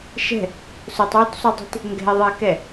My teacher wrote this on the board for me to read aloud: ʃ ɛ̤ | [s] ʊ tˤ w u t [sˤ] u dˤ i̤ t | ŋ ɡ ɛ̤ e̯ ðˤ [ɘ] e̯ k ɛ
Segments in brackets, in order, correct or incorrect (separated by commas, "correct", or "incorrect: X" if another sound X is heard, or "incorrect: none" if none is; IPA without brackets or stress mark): correct, correct, correct